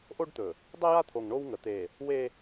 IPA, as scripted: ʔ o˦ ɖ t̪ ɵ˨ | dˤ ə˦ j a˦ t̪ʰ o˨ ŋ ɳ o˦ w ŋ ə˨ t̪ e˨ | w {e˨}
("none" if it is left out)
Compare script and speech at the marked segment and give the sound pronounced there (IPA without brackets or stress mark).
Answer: e˦